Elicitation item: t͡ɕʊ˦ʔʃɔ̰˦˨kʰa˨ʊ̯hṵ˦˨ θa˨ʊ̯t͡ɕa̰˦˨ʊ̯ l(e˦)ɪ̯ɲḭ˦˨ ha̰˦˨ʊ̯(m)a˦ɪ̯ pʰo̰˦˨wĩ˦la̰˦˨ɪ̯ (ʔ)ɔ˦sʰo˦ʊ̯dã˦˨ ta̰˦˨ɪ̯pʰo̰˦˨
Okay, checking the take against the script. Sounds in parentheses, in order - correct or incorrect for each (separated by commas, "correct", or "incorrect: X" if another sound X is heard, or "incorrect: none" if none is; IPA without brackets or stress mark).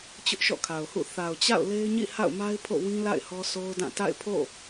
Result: correct, correct, incorrect: h